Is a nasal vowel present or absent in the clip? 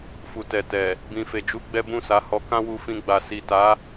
present